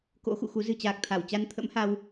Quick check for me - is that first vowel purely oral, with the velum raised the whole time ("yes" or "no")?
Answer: yes